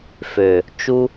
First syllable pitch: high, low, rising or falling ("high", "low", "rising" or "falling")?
low